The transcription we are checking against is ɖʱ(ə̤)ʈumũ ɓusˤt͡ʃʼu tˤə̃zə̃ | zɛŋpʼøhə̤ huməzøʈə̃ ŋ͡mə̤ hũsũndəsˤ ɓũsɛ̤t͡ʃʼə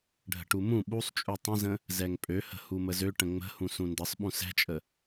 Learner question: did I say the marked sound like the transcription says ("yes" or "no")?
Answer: yes